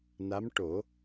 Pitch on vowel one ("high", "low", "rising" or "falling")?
rising